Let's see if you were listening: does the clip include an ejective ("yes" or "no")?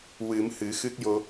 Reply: no